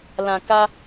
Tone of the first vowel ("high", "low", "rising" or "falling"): low